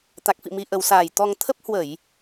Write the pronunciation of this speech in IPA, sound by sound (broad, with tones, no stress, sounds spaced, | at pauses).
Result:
t̪ a˨˩ k̚ f ḭ˧˨ m i˨˩ ʔ ə˨˩ w s aː˨˩ j t̪ ɔ˧ ŋ t̪ʰ ə˦˥ p̚ h w ə˧˩˨ j